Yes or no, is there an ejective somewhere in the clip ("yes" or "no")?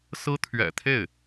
no